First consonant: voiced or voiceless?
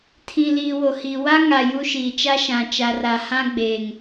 voiceless